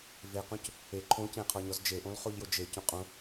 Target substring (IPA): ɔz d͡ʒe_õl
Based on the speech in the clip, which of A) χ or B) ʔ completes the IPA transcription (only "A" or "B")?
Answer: B